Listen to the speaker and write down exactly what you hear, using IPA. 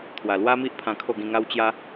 t̪ʰwa˨˩lwa˦mi˦ʔpʰã˧ kʰo˥˧ɡĩ˧ŋa˦w t͡ɕja˦

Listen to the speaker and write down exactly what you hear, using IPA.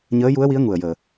ɲəː˧˥ju˧˥ə̯wi˧˥ə̯ ŋu˨˩ə̯jəː˨˩

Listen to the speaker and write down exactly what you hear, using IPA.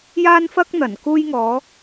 jaː˥nfɐ˥k̚n̪ɐ˨˩n kuː˧jŋɔː˨˧

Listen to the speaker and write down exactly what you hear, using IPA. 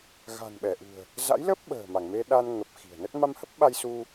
ɣa̤˨˩nɓɛ˧˩ʔṳ˨˩ə̯ | za̰˧˥jlə˦˥p̚ ɓə̤ː˨˩ ma˧˩ŋme˧ ɗa˧n ŋə˨˩p̚ xi̤˨˩ə̯nə˦˥t̚ ma˧mhə˦˥p̚ɓa˧j su˧

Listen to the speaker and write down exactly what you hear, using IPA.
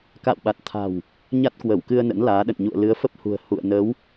ka̰ː˧˨wɓa˨˩t̚t̪ʰa̤˨˩w | ɲa˦˥t̚kwə˧˩wkɨ˧ə̯ nə̰˧˥nlaː˨˦ɗə̰˧˨nɲṵ˧˨ə̯ lɨ˨˦ə̯fə˦˥p̚hṳ˨˩ə̯ hṵ˧˨ə̯ nə˨˦w

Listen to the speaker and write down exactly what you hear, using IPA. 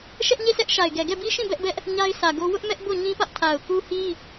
ʃɛ˦ʔɲe˦˨sʰɛ˦ʔ ʃa˨ɪ̯ɡɛ˨ ɡɛ˦˨bi˦ʃĩ˦˨ bɛ˦ʔbɛ˦ʔ | ɲa˦ɪ̯sʰä˨ɡo˦ wʊ˦ʔmɛ˦ʔ bo˦˨ɲĩ˦pä˦ʔ tʰa˨ʊ̯ku˦hi˦

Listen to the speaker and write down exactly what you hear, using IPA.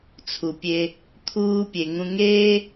t͡sʰu˨pʲe˧ | t̪ʰuː˧pʲe˨ŋũ˧ŋeː˦

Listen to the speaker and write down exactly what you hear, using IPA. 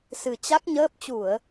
sɨ˨˩t͡ɕa˦˥k̚ɲəː˦˥p̚ t͡ɕu˧˩˨ə̯

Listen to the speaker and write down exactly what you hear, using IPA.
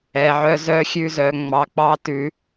ɛ˨ʕœ˧ zœ˧xʲʉ˧zœ˨ ŋ͡mɑ˨k͡pɑ˦tʉ˧

